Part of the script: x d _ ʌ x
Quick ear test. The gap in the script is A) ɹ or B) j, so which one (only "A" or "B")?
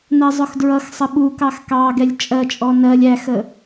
A